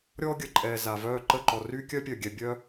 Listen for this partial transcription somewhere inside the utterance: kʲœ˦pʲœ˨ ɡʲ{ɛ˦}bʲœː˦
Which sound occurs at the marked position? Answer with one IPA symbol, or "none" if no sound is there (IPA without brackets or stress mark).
ɛ˨